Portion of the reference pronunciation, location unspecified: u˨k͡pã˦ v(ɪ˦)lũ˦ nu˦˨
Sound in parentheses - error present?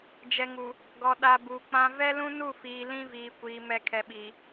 yes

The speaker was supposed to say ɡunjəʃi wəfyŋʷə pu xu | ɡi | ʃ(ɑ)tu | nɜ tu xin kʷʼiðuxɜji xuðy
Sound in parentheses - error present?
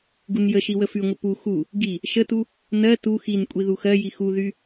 yes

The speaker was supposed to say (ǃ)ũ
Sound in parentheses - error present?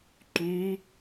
no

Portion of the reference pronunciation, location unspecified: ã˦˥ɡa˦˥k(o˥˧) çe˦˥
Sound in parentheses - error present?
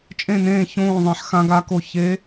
no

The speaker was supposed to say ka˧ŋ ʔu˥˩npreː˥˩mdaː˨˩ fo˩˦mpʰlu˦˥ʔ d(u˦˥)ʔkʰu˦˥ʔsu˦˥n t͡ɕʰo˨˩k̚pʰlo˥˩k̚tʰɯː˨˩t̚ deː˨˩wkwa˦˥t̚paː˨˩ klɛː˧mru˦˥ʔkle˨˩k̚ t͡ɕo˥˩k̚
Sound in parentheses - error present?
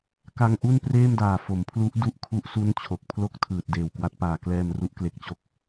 no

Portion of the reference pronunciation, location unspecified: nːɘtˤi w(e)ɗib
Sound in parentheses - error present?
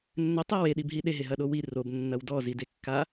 no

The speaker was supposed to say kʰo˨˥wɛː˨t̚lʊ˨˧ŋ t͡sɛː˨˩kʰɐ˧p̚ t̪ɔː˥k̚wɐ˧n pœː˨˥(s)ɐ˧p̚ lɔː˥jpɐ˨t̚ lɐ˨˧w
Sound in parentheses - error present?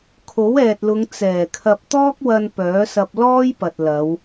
no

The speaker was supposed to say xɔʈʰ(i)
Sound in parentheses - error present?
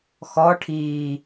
yes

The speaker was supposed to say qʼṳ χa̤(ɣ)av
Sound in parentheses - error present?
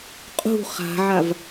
yes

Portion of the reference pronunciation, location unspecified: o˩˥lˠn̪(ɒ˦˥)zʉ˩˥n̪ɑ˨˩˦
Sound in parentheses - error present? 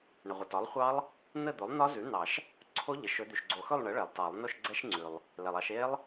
no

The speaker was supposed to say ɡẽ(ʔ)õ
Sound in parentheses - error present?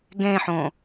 yes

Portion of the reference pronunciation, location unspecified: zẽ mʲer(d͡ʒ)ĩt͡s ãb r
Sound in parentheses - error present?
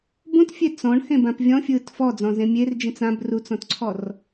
no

